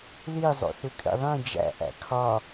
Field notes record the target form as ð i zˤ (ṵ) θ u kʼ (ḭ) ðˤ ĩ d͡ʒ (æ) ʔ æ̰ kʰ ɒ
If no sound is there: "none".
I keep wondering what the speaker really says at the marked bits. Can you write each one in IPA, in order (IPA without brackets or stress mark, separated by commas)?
o̰, ḭ, æ̰